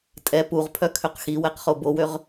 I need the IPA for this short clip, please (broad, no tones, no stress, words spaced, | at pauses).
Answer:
tʼɛ puʁpʰœ kʰøqxiwɛq χobowøʁ